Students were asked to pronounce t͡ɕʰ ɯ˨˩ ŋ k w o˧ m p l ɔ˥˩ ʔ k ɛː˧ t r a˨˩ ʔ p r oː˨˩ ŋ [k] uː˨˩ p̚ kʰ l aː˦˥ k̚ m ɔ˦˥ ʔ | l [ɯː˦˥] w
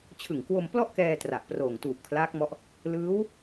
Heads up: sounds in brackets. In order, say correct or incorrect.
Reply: incorrect: t, correct

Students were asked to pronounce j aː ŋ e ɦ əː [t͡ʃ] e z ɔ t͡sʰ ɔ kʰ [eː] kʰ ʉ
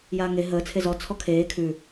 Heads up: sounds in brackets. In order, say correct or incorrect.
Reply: incorrect: t͡sʰ, correct

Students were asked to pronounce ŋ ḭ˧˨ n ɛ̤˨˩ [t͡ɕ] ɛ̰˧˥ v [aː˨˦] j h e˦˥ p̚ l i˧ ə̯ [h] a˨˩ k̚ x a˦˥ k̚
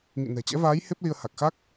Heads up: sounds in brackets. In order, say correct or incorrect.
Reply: correct, correct, correct

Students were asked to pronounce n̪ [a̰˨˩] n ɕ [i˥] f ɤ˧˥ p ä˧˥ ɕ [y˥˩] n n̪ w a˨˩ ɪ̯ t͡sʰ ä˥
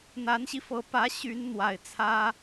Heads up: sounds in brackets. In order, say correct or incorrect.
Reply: incorrect: a˧˥, incorrect: i˧, incorrect: y˧˥

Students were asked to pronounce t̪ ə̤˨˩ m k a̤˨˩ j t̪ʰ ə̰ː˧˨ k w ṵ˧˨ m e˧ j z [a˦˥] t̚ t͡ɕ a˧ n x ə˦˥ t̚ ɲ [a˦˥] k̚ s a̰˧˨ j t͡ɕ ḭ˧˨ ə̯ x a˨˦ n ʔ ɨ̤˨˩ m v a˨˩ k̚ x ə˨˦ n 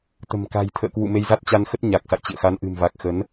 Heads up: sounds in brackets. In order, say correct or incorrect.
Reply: correct, incorrect: a˨˩

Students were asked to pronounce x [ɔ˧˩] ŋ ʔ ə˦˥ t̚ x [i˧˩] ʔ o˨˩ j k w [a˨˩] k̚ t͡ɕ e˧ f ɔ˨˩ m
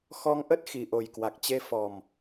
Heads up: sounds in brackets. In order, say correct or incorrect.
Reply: incorrect: ɔ˧, incorrect: i˨˩, correct

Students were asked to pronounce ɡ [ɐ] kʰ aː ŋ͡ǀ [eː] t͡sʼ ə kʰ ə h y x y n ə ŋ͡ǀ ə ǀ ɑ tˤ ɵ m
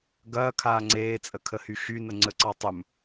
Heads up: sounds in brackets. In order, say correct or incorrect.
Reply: incorrect: ɐː, correct

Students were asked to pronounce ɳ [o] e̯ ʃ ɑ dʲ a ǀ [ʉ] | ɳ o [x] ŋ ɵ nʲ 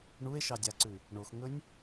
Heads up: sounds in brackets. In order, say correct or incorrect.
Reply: incorrect: u, correct, correct

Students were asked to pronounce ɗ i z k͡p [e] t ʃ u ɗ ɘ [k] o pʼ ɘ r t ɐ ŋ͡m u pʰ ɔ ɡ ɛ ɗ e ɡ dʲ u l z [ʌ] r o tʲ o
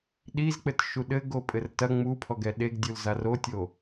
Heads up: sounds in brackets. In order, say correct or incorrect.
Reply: incorrect: ɘ, incorrect: ɡ, incorrect: a

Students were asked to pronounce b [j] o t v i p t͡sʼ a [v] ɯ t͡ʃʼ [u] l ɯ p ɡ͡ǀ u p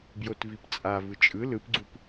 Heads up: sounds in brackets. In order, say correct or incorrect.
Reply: correct, correct, incorrect: ɯ

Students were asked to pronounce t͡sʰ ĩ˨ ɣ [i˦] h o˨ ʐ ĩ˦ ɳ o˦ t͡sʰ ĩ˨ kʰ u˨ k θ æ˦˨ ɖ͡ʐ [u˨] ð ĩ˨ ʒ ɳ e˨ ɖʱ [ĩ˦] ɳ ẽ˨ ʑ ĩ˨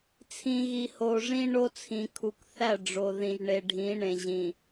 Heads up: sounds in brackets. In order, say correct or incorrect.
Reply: incorrect: i˨, incorrect: o˨, incorrect: ĩ˨˦

